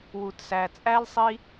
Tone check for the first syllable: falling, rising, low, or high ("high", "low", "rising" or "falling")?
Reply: low